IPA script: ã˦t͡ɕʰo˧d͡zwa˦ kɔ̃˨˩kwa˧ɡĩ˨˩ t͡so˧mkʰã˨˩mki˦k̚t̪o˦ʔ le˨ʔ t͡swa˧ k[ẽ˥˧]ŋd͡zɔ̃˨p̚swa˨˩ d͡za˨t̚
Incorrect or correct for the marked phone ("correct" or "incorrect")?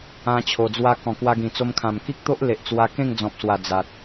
correct